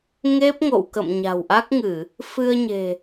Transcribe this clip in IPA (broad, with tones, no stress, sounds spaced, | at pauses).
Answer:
ŋ e˦˥ p̚ ŋ o̰˧˨ w k ə̰˧˨ m ɲ a̤˨˩ w ʔ a˦˥ k̚ ŋ ɨ˧˩˨ | f ɨ˧ ə̯ ɲ e̤˨˩